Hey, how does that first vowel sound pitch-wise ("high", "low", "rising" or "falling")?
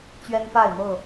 high